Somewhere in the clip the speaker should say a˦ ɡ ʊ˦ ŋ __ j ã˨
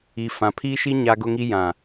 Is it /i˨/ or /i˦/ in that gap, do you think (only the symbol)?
i˦